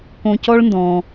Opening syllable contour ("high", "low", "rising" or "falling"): high